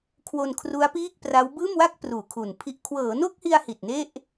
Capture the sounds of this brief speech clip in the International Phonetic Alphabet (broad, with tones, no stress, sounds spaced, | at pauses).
kʰ w o˧ n kʰ r u˦˥ a̯ p iː˥˩ k̚ p r a˦˥ w b ɯː˥˩ m w a˥˩ k̚ p r uː˨˩ kʰ u˨˩ n pʰ i˥˩ ʔ kʰ w ɤː˩˦ n o˥˩ k̚ h i˧ a̯ h i˨˩ t̚ n e˥˩ ʔ